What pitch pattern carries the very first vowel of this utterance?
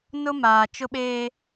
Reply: high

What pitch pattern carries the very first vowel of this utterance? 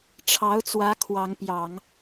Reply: rising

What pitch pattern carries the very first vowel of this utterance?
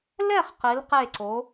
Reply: falling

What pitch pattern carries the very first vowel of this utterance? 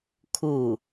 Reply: falling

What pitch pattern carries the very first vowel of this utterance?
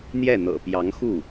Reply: falling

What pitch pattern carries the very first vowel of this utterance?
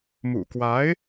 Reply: low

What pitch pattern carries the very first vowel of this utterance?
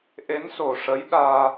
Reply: rising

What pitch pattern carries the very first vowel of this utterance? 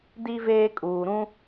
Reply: high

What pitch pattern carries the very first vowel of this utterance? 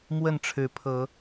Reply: falling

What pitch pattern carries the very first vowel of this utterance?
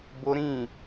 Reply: high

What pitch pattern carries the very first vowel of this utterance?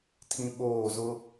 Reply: high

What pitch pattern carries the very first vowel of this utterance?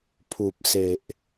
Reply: low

